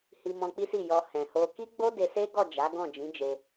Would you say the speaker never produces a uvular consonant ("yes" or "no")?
yes